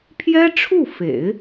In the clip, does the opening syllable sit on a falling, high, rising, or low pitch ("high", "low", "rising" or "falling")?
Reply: high